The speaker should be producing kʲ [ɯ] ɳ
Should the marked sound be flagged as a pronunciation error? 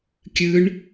no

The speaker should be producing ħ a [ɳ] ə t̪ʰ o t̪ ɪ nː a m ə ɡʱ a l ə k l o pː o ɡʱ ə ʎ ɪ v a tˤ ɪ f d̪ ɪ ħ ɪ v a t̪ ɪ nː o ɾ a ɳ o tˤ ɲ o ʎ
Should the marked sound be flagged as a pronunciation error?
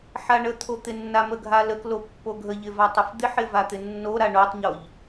no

